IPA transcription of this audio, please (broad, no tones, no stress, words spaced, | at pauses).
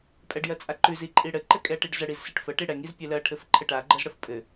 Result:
pʼɛɖjɜt͡sʼaǃʉz iǃʼiɽɘ ǃɘkʼɛʈiɖzə ɽizsiʈfə ʈiɽɛŋ izpʲɘlɜ ʈʰɘfǃʰɘʈa ɡ͡ǃəzɽəfpʼɘ